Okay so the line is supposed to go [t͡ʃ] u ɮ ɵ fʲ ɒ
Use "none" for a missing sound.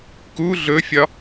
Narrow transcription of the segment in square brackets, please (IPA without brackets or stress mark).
k